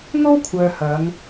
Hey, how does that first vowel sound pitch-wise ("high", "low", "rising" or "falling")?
high